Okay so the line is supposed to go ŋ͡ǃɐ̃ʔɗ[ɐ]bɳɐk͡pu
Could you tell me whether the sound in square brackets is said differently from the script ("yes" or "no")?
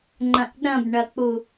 yes